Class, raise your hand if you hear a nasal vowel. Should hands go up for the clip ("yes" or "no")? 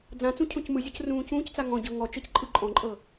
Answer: yes